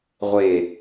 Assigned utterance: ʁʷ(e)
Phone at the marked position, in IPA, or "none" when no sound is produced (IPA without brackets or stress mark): e